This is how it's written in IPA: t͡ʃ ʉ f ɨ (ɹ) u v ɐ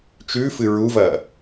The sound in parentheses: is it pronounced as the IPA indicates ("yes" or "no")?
yes